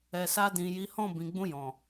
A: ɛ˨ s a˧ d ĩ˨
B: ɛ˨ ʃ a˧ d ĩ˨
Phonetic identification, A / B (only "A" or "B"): A